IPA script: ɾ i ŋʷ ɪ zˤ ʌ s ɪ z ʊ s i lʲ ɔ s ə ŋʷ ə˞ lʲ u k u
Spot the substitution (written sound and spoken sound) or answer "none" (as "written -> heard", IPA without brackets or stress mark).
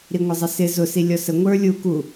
none